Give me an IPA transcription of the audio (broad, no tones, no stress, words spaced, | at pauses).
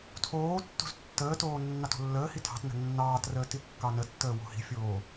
tʰoː tːo̤ztːəːtoː nːɑto̤lːəːhi tʰɑ̤t nə̤nːɑːtrəː tikːɑnətːəː wo̤hi̤fʲoː